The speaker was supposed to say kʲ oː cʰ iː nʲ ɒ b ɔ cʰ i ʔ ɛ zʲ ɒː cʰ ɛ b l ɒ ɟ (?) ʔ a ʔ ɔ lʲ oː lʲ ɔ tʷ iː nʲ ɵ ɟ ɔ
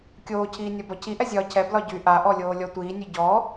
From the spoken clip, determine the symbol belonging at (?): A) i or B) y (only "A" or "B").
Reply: B